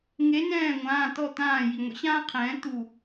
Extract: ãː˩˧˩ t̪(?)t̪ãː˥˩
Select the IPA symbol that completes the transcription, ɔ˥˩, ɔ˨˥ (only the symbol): ɔ˥˩